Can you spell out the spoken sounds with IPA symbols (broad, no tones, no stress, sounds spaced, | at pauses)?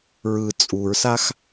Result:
ɹ ɯ t͡sʼ u ɹ s a x